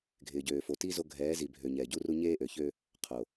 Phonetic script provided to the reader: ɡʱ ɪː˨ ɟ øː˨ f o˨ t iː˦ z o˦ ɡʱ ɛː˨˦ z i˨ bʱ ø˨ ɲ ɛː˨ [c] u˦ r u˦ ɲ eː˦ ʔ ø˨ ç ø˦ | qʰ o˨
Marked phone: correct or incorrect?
incorrect: ɟ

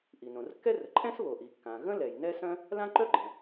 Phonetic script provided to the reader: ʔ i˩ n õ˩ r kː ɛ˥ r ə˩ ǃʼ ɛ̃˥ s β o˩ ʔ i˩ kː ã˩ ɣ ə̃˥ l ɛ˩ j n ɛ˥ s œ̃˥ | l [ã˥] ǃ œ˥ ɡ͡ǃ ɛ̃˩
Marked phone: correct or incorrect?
correct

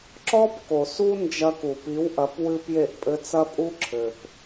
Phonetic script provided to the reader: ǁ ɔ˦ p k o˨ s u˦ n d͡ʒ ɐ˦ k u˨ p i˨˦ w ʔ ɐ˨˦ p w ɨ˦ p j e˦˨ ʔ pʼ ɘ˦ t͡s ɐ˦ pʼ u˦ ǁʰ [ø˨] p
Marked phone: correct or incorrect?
incorrect: ɘ˨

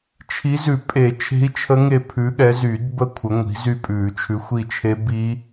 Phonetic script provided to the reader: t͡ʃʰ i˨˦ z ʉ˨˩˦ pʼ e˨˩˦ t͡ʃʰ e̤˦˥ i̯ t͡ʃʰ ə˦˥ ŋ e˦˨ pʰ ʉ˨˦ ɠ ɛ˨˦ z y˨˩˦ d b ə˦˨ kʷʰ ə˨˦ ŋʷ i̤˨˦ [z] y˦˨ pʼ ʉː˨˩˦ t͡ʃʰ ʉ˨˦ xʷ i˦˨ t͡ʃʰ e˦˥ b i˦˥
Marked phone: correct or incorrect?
correct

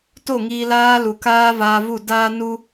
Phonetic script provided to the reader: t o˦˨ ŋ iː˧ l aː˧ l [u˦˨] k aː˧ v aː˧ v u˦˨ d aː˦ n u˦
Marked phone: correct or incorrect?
incorrect: u˨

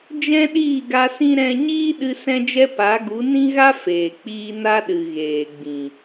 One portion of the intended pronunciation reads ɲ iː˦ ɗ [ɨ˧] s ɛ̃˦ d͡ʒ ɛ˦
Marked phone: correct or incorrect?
correct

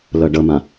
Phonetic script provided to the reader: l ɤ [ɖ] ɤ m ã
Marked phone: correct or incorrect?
correct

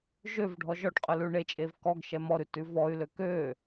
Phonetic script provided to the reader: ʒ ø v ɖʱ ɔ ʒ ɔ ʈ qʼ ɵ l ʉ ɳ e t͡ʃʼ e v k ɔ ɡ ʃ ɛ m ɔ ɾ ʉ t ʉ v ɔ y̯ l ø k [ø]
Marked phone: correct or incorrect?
correct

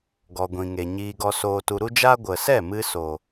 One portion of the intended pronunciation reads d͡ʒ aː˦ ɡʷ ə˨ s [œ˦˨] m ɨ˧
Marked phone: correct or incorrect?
incorrect: ɛ˦˨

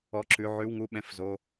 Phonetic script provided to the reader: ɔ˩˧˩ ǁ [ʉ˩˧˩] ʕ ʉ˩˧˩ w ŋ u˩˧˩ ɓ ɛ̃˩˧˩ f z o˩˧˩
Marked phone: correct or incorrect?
correct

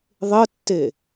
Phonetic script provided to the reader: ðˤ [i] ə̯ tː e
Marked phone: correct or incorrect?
incorrect: ɪ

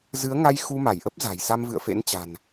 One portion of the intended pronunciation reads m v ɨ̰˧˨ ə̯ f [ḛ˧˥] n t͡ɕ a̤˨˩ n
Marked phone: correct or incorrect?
correct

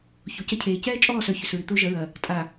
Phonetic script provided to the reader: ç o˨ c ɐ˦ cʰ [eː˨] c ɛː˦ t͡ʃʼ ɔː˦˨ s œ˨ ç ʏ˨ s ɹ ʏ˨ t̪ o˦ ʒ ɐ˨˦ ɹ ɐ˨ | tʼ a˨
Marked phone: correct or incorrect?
correct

